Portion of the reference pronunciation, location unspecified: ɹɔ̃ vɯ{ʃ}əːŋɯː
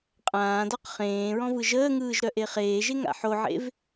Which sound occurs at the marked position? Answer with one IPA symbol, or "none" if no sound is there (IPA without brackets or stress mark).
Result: ʒ